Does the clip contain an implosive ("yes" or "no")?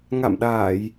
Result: yes